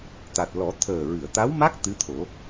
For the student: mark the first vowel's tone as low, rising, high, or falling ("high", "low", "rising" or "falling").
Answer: low